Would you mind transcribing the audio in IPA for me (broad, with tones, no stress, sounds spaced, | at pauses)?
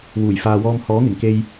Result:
w uː˨˩ j f aː˨ w ɔː˧ m h ɔː˨˥ ŋ ɪ˨˩ ŋ k e˧ j